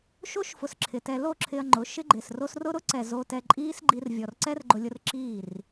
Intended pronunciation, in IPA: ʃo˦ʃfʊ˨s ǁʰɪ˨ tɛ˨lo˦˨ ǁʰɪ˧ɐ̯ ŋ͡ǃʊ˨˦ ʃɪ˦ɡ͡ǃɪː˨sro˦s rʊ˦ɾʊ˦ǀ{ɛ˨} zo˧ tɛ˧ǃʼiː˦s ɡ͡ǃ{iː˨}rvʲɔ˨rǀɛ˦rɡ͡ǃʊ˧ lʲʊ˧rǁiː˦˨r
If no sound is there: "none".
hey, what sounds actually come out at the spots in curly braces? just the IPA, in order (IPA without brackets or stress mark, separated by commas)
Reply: ɛ˨, iː˧